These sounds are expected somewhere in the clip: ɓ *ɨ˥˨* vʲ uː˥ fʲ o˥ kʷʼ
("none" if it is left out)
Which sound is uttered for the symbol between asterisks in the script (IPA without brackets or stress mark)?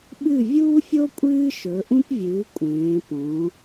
ɨ˥˨